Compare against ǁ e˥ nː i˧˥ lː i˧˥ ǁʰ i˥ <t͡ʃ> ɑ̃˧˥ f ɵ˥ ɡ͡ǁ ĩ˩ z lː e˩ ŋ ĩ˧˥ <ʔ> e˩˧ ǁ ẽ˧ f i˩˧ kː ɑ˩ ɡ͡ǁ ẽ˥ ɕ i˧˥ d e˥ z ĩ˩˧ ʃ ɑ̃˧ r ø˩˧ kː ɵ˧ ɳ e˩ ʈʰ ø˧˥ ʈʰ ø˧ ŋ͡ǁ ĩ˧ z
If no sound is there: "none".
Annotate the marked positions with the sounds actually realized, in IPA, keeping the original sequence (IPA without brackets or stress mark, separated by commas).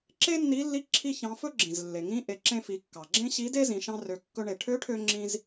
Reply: ç, ʔ